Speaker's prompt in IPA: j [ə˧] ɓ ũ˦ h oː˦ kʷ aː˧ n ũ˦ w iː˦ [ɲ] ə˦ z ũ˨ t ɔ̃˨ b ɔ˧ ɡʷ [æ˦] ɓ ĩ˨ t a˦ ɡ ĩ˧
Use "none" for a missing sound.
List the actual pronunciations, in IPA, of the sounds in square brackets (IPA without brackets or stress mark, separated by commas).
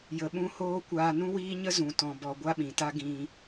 ə˧, ɲ, a˦